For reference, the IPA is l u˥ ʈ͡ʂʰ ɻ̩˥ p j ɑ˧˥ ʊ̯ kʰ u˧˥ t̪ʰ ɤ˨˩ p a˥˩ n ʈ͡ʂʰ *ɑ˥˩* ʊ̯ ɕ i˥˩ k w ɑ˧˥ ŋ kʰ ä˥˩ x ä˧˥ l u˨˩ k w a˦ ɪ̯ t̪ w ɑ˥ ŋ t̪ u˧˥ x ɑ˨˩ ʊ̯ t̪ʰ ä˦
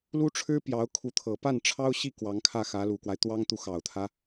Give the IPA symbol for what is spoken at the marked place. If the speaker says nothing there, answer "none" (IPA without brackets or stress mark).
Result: ɑ˥